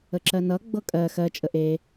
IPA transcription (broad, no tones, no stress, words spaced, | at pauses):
əǁɜnʌ ɡ͡bɤkʼɜ xɜ t͡ʃʼəʔe